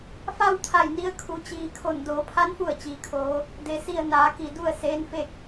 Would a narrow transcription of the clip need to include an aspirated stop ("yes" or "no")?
yes